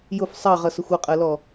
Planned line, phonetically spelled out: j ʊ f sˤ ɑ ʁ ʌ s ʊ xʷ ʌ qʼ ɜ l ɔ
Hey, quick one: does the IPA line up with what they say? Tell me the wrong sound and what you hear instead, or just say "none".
none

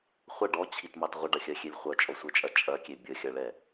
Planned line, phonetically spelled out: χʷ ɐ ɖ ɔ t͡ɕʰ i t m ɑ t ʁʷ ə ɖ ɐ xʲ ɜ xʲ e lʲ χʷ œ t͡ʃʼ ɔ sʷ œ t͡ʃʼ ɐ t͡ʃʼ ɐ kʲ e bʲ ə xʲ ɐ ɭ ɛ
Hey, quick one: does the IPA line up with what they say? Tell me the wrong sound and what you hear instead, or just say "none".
none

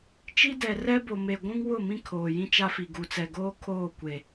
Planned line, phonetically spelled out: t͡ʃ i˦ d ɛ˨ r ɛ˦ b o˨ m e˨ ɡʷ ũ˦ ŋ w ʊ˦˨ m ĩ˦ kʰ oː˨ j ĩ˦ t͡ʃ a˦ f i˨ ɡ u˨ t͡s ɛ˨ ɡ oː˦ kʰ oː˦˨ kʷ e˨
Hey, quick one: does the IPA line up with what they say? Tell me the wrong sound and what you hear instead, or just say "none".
none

